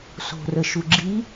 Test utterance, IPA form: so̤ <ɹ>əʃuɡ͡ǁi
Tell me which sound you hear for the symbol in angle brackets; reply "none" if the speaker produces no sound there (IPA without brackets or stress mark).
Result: r